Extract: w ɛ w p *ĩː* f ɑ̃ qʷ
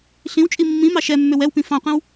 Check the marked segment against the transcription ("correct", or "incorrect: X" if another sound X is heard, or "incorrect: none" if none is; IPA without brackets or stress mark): incorrect: ĩ